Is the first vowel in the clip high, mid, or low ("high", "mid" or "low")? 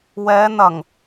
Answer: mid